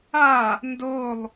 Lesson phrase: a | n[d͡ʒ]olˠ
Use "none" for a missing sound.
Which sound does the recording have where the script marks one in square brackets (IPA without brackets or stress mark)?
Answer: d